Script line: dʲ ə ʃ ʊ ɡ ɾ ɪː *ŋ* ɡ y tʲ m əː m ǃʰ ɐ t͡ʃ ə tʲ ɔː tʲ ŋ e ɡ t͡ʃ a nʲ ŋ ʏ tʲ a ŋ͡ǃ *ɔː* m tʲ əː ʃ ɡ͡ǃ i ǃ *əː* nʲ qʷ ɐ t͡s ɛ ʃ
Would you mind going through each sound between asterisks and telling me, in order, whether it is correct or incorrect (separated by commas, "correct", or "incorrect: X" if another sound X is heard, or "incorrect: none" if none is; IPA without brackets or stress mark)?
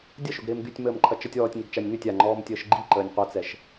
incorrect: m, correct, correct